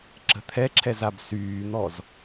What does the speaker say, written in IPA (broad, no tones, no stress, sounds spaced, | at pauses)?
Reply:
ǁ ə̤ t̪ʰ ɛ ǁʰ ɛ z a b s yː n̪ ɔ z